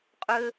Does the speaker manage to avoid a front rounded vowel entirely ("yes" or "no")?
no